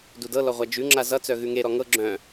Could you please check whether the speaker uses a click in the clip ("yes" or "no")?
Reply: yes